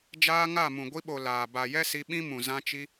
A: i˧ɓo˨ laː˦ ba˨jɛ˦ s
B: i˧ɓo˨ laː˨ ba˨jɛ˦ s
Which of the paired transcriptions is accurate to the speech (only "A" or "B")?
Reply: B